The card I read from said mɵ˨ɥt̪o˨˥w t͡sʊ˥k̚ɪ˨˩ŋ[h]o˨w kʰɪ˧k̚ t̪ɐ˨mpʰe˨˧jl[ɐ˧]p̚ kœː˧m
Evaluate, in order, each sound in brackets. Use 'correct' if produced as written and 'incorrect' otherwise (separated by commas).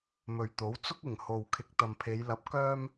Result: correct, incorrect